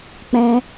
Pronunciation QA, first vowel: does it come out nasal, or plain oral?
nasal